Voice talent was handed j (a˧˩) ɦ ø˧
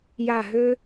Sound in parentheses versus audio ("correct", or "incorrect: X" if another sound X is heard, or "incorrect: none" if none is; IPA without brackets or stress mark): correct